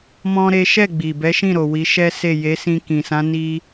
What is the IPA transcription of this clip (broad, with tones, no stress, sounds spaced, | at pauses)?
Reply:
m ɔ̃˦ ɾ e˦ ʃ ɛ˦˨ ɡ͡b i˨ b ɛ˨˦ ʃ ĩ˦˨ ɾ o˨ w i˨˦ ʃ ɛ˦ s e˦˨ j e˨˦ s ĩ˧ k ĩ˨ s ã˨˦ n i˧